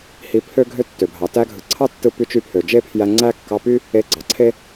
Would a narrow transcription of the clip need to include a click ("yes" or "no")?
yes